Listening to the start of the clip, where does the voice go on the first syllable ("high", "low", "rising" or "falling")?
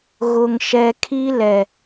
low